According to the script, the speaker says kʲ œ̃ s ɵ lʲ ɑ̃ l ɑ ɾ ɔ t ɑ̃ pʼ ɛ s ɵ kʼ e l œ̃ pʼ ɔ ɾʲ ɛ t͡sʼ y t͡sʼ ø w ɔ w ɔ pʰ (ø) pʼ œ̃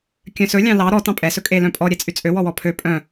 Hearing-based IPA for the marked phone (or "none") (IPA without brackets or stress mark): ø